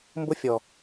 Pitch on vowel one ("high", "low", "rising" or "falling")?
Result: high